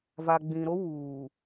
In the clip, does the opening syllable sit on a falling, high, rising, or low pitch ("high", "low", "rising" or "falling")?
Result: low